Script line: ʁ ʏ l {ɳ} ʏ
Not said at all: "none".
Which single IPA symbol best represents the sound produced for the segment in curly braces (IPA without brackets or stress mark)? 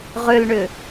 ɳ